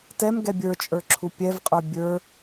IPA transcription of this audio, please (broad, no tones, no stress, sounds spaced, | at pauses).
t ɛ m ɡ ɛ bʲ ə˞ t͡ʃʼ ə˞ ǁʰ u pʲ ɛ v qʼ ə˞ bʲ ə˞